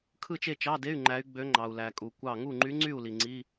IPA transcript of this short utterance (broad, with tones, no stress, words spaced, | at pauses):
kʰɯ˥˨t͡ʃe˥˨t͡ʃɑ˧˥˧de˧˥˧y̯ ŋ͡ǃæ˧˥y̯ɡ͡bø˧˥ ŋ͡ǃɑ˩u̯læ˩kʼu˩ kʷɑ˧˩ŋu˥˨ ŋ͡ǃy˧˥ŋ͡ǀy˥˨u̯ li˩ŋ͡ǀi˧˥˧